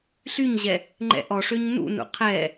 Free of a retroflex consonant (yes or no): no